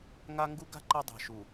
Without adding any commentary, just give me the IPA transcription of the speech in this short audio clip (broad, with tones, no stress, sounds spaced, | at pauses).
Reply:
ŋ a˦ ŋ ɡ u˦ ɡ a̤˦ ǃ ɜ˦ dˤ a̤˨ ʃ u˨